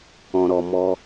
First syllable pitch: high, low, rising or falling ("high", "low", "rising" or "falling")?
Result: low